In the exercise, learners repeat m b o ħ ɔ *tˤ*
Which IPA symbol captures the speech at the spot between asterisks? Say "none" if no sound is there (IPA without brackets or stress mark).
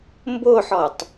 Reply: tˤ